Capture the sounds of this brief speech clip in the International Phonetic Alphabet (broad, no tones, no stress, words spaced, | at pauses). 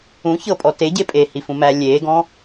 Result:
ũ çɤpʼɔ teɟe pʼehifũmæ lʲeːɡɔ̃